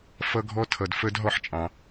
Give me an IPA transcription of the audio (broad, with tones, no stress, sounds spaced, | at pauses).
f ʌ˧ ɡʱ ɔ˧ tʰ ʌ˨ d f ə˧ d ɦ ɔ˦ ħ t͡ʃʼ ɑ̃˧